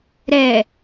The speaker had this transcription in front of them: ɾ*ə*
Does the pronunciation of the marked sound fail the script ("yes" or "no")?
yes